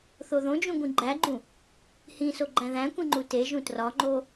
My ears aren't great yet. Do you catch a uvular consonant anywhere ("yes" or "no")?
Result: no